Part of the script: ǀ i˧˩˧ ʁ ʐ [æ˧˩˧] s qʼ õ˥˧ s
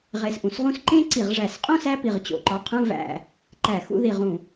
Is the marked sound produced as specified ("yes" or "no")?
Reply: yes